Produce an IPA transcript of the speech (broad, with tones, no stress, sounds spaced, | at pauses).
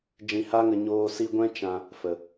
d͡ʒ ĩ˧ h a˦ ŋ ə˧ ɲ oː˧ s i˧ ɡʷ ɛ̃˦ t͡ʃ ã˧ | f ə˨